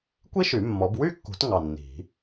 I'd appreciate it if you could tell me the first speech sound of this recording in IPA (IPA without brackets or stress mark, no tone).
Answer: kʷ